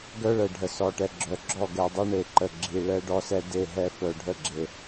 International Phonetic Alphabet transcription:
ɡ œ˦ ɭ ə˨ ɖʱ ə˨ s ɔ˨ ʈ ɛ˨ ɡ͡ǁ œ˨ ɡ͡ǁ ɔ˦˨ ɡ ɛ˨ dˤ i˦ ɳ e˨ ǃ ə˨ ɡ͡ǁ i˨ ɭ ɛ˦ ɖ ɔ˦ s ɛ˦ d e˦˨ ɦ ɛ˦ f œ˨ ɖʱ ə˦˨ ɡ͡ǁ e˨

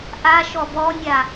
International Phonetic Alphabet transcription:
ʔ a ʃ ɔ b ɔ nʲ a

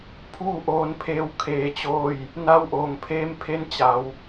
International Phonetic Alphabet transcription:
pʰ uː˥˨ ʔ oː˧ n pʰ eː˧ w kʰ eː˧ t͡ɕ oː˥˨ j | n a˧˥ w ʔ oː˩ ŋ pʰ eː˧˥ m pʰ e˧˥ n t͡ɕ a˩˧ w

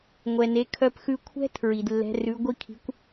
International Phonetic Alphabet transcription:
ŋʷ ɛ˩ n e˩˧ kʰ œ˧ p x ʉ˧ kʷʰ ɛ̤˥ tʰ ɹ i˩ d lː ɛ̤˧˥ r ʉ˧˥ ɡʷ i˥ kʰ i̤˧˥ kʷ

